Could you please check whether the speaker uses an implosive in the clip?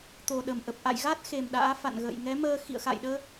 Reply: yes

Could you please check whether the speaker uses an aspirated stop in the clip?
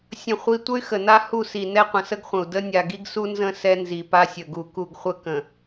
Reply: no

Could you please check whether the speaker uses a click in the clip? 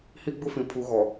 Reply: no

